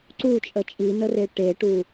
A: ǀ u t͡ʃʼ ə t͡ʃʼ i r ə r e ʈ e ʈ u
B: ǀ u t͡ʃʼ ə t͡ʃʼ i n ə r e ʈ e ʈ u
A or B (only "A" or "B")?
B